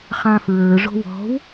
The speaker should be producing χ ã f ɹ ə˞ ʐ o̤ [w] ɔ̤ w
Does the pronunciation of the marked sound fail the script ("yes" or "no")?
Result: no